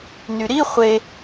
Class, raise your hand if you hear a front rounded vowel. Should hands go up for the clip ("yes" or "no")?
yes